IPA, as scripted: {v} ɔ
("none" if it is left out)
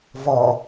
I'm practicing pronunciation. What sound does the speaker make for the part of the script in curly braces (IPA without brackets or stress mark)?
v